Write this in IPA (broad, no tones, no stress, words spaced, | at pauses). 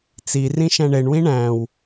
t͡si rĩʃæ̃ɳeɳwĩ ɳæ̃w